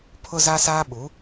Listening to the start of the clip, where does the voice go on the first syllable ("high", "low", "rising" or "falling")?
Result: high